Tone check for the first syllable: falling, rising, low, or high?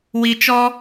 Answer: low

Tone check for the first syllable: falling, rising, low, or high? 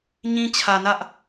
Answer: high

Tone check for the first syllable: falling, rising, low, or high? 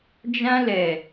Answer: high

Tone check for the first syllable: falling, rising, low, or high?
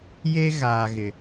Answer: high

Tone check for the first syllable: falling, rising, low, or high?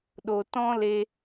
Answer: low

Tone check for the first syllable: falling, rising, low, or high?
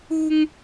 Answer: high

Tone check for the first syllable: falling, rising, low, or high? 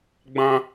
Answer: high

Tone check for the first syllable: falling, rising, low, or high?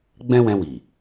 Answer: high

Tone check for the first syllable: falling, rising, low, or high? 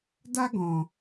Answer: high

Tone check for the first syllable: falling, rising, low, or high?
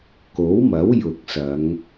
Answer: rising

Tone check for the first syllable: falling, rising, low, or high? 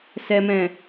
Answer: low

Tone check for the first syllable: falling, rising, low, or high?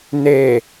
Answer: low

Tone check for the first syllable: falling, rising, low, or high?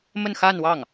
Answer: falling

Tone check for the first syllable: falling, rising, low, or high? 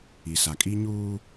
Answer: low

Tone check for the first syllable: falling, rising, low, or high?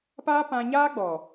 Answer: high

